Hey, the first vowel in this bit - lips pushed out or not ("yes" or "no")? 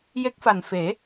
no